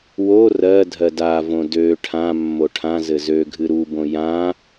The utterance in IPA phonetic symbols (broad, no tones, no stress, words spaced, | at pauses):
wo rɜ dʱɜdavõ dø ʈʰã mːoʈʰãzɘ zø ɡʱɨɾubõ jã